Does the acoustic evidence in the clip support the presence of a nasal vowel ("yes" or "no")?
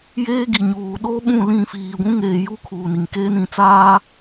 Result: yes